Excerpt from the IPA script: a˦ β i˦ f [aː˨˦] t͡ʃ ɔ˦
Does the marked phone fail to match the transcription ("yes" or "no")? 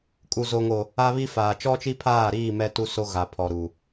yes